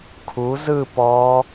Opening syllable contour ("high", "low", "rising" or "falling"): rising